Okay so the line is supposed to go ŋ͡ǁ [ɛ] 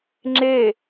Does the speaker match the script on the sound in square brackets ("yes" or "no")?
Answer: no